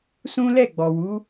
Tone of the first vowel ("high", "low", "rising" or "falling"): high